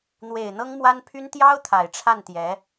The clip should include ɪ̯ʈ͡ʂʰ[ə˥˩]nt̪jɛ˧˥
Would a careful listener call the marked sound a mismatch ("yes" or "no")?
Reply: yes